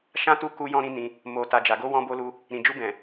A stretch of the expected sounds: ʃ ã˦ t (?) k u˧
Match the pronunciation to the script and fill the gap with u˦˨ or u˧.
u˦˨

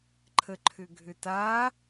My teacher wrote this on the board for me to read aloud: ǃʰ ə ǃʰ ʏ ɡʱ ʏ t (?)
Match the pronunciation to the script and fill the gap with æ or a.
a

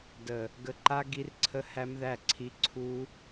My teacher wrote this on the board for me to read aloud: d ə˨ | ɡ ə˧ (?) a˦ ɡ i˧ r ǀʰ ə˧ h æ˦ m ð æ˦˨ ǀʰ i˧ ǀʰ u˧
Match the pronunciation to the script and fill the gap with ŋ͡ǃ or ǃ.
ǃ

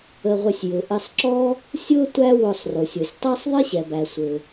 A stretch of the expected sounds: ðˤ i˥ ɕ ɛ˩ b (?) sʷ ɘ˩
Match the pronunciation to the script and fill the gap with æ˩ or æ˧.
æ˩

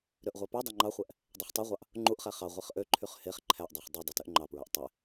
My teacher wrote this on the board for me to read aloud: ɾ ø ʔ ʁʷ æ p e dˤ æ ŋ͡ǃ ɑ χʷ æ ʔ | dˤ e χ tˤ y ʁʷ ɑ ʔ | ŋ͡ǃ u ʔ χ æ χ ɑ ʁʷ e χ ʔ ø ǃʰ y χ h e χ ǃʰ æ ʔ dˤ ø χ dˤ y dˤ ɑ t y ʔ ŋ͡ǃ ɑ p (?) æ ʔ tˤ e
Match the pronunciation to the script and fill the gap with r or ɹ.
ɹ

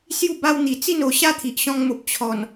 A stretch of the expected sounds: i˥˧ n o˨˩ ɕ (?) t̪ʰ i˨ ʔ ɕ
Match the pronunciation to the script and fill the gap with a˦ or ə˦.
a˦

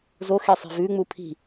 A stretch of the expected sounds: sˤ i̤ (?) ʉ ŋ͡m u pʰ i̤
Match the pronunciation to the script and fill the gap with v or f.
v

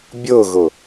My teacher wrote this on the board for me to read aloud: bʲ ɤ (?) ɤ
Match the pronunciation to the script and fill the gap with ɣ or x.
ɣ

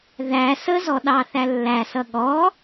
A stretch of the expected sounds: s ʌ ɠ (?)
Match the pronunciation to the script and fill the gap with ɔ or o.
ɔ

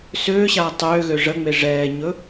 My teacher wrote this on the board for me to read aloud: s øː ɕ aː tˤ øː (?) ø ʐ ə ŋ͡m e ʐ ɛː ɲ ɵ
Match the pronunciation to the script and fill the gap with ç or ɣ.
ɣ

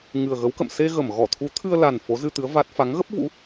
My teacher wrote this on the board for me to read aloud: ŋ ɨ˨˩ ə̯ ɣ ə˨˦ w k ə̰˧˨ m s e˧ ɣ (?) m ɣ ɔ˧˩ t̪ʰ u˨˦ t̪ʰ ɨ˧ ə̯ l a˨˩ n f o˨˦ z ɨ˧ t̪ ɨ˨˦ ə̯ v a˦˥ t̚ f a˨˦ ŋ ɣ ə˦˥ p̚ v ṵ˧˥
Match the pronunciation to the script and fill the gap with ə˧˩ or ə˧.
ə˧˩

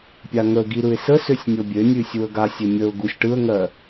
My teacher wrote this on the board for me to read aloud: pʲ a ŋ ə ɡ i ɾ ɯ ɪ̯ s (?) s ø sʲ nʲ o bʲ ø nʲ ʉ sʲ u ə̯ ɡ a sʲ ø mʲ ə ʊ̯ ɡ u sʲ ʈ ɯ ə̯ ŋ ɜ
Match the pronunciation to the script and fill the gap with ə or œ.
ə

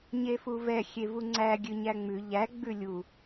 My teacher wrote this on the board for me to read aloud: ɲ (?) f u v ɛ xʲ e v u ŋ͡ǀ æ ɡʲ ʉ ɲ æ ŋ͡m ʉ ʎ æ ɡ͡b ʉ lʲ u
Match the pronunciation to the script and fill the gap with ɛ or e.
e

